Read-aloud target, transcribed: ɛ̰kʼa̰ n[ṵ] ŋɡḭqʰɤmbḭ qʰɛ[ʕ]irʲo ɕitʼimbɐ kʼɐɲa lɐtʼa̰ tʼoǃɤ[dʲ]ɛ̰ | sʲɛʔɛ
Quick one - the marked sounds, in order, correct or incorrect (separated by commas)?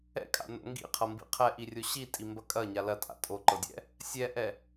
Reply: incorrect, incorrect, correct